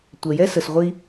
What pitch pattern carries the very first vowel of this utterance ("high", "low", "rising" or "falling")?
low